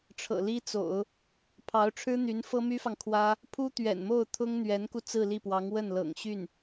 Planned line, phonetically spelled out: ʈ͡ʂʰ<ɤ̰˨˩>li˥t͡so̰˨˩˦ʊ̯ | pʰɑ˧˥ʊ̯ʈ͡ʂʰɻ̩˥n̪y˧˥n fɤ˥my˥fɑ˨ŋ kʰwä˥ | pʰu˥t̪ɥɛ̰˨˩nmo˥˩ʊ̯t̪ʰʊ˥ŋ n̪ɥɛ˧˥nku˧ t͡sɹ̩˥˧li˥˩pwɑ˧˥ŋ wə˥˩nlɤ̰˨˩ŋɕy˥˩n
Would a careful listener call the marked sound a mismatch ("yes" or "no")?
no